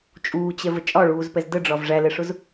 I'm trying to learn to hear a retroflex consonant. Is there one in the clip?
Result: yes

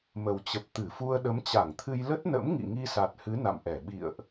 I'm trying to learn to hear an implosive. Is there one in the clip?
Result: yes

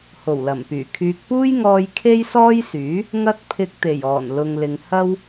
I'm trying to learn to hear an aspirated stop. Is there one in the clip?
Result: yes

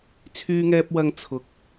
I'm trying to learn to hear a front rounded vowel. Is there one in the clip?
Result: yes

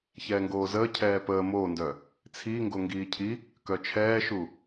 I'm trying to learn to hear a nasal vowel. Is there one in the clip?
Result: no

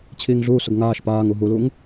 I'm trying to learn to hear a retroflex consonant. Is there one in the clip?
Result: no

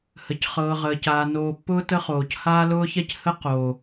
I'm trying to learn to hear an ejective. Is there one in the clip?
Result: no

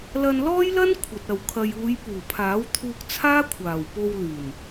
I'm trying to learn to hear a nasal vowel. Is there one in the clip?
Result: no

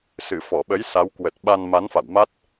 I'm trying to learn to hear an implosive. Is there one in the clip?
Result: yes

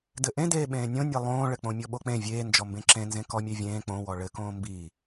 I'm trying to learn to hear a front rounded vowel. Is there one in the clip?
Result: no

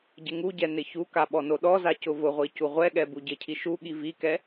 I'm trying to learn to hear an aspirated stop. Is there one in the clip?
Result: yes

